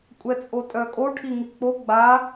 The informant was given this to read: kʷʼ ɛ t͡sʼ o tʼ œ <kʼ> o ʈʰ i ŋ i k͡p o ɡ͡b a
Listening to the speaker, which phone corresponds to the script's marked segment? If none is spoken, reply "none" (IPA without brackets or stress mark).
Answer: kʼ